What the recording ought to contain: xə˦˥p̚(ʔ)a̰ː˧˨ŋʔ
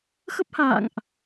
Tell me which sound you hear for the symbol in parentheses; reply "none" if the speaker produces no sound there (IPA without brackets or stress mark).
h